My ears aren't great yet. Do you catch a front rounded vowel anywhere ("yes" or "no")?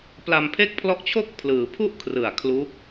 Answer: no